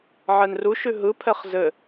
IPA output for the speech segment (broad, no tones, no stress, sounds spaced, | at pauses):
ʕ ɛ n r u ʃ ʉ ɦ ɯ pʰ ɛ χ z ɘ